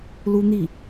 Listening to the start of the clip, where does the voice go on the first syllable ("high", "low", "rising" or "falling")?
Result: high